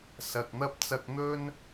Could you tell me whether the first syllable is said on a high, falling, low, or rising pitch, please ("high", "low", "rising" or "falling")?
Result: low